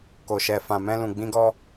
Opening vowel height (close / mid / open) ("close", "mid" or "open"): mid